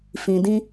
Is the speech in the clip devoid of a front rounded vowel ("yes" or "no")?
yes